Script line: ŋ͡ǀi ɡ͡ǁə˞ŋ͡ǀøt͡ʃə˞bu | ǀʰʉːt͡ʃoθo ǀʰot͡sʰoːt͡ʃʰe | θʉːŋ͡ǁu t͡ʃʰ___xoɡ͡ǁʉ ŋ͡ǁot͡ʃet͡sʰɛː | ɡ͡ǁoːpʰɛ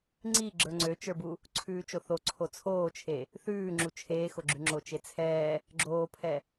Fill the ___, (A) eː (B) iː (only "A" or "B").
A